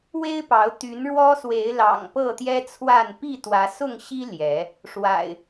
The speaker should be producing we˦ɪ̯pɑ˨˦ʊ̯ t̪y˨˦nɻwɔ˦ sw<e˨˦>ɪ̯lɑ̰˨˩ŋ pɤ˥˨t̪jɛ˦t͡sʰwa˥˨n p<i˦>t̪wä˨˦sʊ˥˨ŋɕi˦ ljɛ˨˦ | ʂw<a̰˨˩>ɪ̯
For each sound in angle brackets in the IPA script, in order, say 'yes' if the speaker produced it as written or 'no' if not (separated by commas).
yes, no, yes